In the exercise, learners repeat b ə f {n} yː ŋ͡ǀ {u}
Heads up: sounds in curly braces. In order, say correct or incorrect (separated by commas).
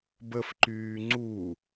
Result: incorrect, correct